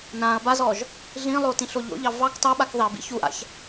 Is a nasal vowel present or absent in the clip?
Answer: present